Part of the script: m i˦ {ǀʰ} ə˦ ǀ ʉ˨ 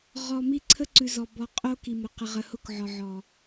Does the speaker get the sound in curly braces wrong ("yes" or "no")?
no